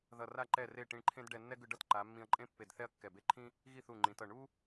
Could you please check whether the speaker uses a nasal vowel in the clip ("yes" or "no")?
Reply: yes